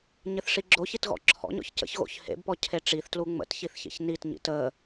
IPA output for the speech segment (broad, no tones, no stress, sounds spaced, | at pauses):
ɲ ɘ θ ʂ i ɡ͡ǁ o ç i t ɣ ɔ̰ ǁʰ ɔ̰ ɲ ɔ̰ ç c ə̰ ç ɣ o̰ ç h ḛ b p ɔ cʰ e ʈ͡ʂ i θ t l u ŋ͡m ə̰ t ç i θ ç ḛ ç n i t ɲ ḭ t ə